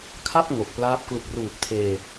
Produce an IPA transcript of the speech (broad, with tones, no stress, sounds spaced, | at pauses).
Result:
kʰ a˥˩ p̚ ŋ o˨˩ k̚ p l aː˦˥ p̚ k l u˨˩ k̚ r uː˨˩ p̚ tʰ eː˧